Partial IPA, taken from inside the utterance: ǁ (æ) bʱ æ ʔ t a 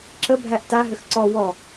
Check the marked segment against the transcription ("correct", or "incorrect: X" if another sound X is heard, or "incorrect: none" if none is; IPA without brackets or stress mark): incorrect: ə